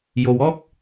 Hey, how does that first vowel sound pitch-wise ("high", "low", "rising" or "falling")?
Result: low